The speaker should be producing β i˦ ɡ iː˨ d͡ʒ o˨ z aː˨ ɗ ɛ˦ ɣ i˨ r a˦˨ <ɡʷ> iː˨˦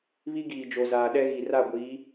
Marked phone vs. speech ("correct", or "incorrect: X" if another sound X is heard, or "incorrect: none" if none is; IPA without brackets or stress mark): correct